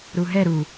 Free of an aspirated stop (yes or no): yes